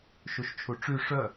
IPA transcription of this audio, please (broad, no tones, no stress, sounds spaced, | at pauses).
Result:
ʃ u ʃ t͡ʃʰ u ʈ͡ʂ y ʂ œ